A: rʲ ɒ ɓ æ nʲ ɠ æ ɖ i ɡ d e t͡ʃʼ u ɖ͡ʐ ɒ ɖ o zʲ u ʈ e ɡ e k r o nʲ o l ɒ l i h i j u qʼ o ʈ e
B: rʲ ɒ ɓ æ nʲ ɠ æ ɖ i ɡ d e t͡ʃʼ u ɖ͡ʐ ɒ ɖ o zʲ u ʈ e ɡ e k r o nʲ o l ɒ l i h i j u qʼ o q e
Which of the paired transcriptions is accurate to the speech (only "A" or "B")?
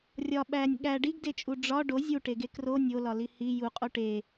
A